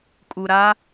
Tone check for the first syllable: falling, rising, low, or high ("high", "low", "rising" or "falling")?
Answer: low